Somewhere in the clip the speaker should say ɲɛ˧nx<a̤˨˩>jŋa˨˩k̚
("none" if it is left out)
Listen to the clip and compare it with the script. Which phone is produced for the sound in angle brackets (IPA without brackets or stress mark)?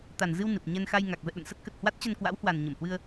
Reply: a˧